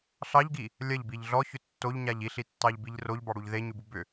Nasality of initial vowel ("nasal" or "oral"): oral